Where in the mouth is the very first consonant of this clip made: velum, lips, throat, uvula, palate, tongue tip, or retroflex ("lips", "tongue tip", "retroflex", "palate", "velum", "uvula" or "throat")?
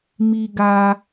lips